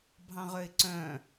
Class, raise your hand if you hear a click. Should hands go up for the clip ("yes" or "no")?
yes